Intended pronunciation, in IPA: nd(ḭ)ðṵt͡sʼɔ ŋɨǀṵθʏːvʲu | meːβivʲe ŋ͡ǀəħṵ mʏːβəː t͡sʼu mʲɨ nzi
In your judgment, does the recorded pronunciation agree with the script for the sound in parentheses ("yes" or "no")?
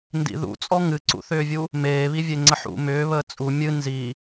yes